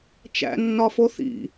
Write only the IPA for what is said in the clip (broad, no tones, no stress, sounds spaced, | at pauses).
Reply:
t͡ʃ æ̰ nː ɒ f o θ ḭ